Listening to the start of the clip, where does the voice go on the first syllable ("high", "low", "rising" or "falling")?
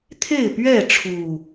falling